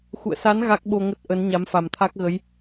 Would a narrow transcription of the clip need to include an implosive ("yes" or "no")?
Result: yes